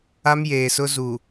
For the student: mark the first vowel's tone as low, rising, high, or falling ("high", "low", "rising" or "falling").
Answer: high